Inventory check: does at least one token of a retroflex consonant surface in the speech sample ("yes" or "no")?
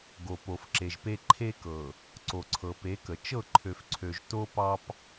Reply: no